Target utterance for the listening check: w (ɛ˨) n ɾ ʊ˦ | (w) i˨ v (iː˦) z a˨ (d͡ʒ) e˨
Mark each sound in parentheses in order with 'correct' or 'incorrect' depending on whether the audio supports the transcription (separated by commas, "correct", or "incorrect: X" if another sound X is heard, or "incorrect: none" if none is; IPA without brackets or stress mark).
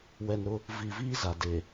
correct, incorrect: v, correct, incorrect: d